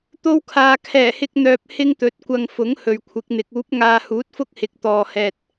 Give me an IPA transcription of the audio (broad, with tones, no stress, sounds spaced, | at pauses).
t̪ o˥ w kʰ aː˧ kʰ ɛː˨˩ h ɪ˧ k̚ n̪ œː˨ p̚ h ɪ˥ ŋ t̪ ɵ˨˥ t̚ kʷ ɐ˧ ŋ f ʊ˨˥ ŋ h ɵ˨ ɥ kʷʰ ɪ˨˥ k̚ n̪ ɪ˨˥ k̚ uː˨˥ p̚ ŋ aː˨ h uː˨˥ t̚ f ʊ˥ k̚ h ɪ˨ k̚ t̪ ɔː˨ h ɛː˨ t̚